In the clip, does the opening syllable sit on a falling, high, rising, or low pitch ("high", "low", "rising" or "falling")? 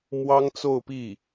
high